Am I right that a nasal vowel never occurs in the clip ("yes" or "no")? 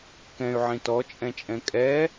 no